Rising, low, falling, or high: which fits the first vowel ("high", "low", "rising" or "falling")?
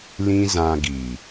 high